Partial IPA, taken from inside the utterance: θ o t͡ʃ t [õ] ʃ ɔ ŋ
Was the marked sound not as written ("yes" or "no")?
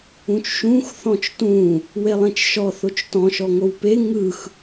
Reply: yes